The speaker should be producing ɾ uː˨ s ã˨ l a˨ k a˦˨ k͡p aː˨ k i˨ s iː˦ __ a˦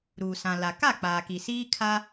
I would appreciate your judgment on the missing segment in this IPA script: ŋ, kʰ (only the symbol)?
kʰ